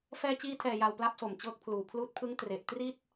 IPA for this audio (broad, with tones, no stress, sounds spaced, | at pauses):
f ɛː˧ t͡ɕ iː˧ tʰ ɛː˨˩ j a˨˩ w p l a˦˥ p̚ s o˨˩ m t͡ɕ ɤː˦˥ k̚ pʰ l uː˨˩ pʰ l uː˦˥ t̚ pʰ ɯ˦˥ ŋ t r e˨˩ ʔ t r i˥˩ t̚